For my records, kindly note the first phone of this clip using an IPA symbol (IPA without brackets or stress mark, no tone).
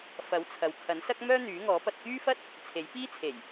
f